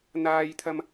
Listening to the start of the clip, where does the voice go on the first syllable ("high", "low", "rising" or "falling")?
high